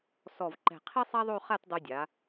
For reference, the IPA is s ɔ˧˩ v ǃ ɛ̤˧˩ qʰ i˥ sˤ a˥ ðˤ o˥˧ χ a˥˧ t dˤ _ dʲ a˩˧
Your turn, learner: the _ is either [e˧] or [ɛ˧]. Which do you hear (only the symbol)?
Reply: ɛ˧